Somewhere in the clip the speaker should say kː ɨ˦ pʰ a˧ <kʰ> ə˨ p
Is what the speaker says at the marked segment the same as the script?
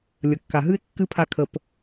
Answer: yes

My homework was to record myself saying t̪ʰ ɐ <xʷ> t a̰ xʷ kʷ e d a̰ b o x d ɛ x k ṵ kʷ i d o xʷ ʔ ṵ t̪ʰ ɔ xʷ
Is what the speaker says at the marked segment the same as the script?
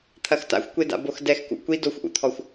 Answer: no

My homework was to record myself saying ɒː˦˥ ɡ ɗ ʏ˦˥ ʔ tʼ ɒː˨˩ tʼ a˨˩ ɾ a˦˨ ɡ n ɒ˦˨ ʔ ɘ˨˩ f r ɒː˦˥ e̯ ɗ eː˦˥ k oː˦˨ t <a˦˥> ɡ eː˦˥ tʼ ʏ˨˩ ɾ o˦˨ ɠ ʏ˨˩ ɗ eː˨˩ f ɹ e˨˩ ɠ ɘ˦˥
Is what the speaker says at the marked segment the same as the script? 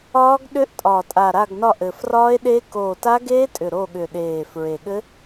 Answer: yes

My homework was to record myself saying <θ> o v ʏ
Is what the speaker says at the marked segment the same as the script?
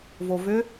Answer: no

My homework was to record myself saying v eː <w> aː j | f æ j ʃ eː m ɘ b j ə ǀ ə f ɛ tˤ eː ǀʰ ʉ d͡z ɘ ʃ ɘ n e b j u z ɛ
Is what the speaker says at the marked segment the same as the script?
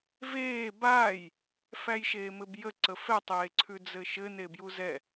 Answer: no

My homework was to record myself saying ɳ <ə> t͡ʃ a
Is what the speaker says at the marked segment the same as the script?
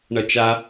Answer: no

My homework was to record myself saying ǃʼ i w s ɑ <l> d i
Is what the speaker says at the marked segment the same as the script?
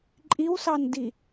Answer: no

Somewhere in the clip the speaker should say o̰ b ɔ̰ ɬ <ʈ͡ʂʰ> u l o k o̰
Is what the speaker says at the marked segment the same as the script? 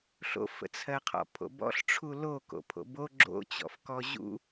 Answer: yes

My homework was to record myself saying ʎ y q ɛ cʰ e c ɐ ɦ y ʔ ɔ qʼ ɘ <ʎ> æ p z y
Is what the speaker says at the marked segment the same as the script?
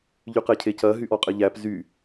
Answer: yes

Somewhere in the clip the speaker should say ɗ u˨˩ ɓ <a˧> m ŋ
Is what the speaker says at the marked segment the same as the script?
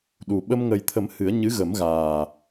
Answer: no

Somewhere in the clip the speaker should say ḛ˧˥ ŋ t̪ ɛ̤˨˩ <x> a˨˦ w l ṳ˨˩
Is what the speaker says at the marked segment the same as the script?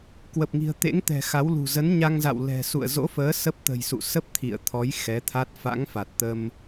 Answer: yes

